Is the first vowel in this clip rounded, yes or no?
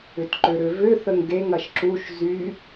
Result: yes